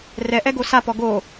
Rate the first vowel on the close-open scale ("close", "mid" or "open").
mid